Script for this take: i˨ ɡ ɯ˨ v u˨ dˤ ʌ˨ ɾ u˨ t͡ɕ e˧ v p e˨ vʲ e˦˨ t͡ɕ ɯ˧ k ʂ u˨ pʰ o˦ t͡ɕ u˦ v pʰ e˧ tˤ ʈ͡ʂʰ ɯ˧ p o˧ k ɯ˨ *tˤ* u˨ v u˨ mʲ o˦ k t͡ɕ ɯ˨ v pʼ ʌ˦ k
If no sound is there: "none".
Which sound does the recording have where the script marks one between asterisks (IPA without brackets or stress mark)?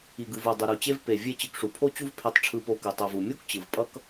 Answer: tˤ